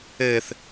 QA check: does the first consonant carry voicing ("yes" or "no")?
no